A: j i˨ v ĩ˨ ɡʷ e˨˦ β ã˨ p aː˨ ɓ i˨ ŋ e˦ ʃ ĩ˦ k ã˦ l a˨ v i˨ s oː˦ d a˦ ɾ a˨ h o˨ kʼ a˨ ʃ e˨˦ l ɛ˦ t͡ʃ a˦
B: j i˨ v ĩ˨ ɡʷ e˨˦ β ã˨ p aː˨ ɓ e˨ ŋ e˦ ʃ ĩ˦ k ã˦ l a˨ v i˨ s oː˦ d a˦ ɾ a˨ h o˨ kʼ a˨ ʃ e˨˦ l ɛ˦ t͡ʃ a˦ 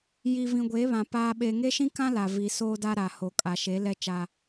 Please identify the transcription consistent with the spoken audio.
B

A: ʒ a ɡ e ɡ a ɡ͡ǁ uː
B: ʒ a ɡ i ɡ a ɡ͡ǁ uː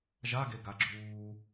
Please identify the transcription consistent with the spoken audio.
A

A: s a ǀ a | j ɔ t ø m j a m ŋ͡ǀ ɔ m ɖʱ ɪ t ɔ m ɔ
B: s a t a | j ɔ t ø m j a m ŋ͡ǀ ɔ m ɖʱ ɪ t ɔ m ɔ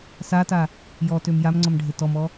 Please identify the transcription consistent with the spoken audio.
B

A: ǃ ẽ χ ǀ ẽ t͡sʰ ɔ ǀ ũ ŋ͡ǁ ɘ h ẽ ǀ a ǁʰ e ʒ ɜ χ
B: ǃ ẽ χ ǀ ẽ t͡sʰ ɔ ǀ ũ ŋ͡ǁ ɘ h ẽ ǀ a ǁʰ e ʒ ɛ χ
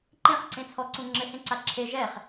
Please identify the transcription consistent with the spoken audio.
B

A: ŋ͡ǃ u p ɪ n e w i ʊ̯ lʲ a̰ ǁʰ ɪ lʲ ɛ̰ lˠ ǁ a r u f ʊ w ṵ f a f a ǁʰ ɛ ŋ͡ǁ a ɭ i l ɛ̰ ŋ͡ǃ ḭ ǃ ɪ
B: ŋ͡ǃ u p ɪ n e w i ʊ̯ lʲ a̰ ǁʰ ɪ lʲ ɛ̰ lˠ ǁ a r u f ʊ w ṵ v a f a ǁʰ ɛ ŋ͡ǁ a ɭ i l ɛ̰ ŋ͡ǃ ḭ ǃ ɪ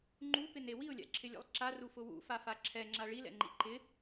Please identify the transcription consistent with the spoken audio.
A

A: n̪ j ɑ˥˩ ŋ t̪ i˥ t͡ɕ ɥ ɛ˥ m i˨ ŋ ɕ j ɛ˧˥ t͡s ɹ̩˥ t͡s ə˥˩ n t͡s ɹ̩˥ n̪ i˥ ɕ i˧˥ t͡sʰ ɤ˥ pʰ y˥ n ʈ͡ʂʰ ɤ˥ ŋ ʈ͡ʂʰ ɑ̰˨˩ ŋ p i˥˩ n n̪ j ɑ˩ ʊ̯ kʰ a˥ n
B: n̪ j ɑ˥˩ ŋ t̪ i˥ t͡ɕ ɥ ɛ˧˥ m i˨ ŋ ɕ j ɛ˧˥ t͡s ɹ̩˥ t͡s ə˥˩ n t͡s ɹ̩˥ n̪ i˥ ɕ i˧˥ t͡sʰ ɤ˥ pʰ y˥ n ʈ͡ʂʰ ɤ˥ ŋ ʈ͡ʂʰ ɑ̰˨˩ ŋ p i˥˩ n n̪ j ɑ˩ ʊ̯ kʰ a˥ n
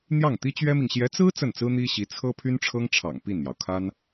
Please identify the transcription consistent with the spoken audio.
A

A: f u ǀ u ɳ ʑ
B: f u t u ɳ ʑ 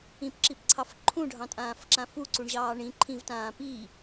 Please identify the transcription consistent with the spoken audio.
A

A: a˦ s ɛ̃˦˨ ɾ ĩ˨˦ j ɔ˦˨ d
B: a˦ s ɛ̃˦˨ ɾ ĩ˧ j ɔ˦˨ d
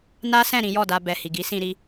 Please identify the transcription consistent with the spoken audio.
A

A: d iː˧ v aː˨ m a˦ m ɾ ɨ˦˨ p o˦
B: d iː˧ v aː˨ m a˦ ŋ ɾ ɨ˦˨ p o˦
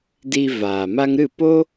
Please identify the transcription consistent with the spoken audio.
B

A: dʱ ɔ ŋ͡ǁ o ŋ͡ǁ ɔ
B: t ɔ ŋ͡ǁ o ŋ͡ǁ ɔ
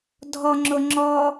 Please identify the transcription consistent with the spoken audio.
A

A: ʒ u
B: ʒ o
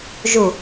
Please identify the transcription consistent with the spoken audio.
A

